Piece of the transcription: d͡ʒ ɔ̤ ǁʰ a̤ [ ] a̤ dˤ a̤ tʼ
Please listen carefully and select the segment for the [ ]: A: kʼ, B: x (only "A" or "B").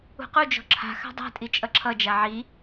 B